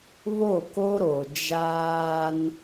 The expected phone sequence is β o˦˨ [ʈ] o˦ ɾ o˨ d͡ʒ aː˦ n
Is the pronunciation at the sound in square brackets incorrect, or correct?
incorrect